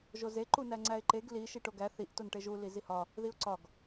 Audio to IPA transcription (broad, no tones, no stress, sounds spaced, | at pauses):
ʒ o z e ǃ u n æ ŋ͡ǀ æ ɪ̯ ǃ e ɡ l i ʃ i ʈ o ɡ æ θ i ʔ t o n ʈ e ʒ u l i z i h ɒ | ð i ʊ̯ ǀ ɒ ɡ